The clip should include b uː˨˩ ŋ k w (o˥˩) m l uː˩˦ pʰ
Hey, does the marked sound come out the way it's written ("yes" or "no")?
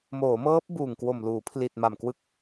no